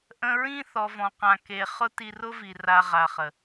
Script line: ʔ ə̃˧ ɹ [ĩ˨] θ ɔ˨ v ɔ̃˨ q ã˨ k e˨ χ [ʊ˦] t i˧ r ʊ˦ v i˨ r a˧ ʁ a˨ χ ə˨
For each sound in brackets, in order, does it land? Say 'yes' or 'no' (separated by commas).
no, yes